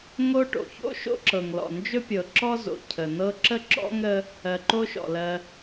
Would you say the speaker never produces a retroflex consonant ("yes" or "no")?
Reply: no